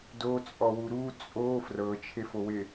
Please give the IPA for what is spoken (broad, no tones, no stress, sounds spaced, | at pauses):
d o t͡sʼ ɔ w u ɾ u t͡sʼ o f r ɤ t͡ʃʰ e f o w e